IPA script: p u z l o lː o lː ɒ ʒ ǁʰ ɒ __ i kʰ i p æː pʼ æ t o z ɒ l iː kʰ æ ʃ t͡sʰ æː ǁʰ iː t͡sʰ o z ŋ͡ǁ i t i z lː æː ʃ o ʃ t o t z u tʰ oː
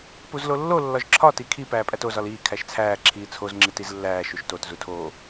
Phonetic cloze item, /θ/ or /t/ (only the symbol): t